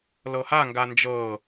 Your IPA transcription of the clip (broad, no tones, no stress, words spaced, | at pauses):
lɤhaŋɡa nd͡ʒɤ